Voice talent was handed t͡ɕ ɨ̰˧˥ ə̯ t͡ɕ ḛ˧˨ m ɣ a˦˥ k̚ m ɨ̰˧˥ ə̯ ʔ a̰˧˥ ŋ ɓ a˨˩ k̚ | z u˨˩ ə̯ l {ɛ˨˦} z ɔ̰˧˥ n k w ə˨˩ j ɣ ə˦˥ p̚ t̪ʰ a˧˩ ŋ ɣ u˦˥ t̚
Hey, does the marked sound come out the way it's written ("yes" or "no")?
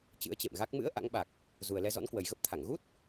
no